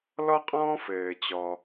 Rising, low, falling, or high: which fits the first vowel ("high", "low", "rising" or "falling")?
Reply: high